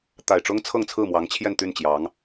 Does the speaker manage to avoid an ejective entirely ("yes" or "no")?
yes